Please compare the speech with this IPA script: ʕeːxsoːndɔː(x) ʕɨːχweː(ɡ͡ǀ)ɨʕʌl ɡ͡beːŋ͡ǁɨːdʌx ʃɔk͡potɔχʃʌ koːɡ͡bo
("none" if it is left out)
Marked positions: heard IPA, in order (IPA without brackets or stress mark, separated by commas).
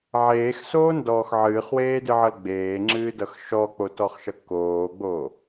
x, d